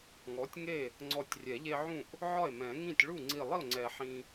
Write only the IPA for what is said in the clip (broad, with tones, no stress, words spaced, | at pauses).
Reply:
ŋɔ˩˥tʲŋe˥˩ | ŋ͡ǀɔ˧˩tʲrʲɛ˨˩˦ ʎe˦ʕũ˥˩ʔ | ʕɒ˥˩e̯mɛ̃˨˩˦ŋĩ˥˩tʲ ɭu˥˩ŋ͡ǀi˧˩lˠi˥˩o̯ŋ͡ǀɛ˨˩˦ ħĩ˦